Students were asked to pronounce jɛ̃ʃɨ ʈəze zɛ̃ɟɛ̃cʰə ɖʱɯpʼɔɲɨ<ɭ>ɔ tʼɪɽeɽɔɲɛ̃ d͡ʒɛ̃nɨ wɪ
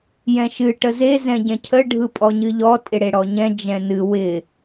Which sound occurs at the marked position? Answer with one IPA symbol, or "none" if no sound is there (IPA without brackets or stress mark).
ʎ